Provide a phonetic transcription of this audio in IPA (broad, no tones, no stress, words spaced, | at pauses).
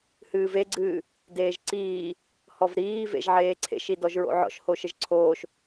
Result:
hɨːveɡ͡ǀɨː | deːʒǀiː | hɔvɾiːvḛʒ ʕeːǀʰḛʃi dɔʒɹo̰ʕɔ̰ʃ hoʃɘʒǀʰoːʃ